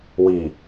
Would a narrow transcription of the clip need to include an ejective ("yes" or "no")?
no